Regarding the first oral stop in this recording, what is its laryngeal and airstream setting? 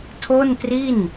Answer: aspirated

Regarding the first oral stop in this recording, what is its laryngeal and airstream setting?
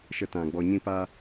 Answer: plain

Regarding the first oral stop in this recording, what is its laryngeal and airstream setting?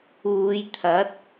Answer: aspirated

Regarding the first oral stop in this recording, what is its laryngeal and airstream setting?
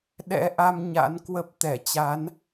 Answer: implosive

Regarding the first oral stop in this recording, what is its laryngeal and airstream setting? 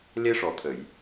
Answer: aspirated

